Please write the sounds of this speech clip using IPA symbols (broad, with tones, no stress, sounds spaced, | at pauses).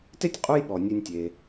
t e˥ tʲ qʼ u˦ j ɓ ɔ˩ nʲ ʉ˨ nʲ tʲ e˩